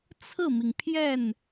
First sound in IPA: t͡sʰ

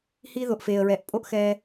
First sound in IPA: h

